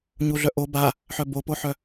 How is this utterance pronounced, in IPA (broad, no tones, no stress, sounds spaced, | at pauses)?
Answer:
ɲ u ɮ œ ʔ o b a | ħ œ b o p o ħ œ